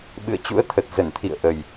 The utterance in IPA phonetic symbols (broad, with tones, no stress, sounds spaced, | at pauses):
ɓ ɨ̰˧˨ ə̯ t͡ɕ ṵ˧˥ ə̯ t̪ʰ ə˨˩ t̚ z ə˧˩ n t̪ʰ ḭ˧˨ ə̯ ʔ ə˨˩ j